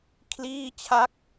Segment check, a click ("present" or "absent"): absent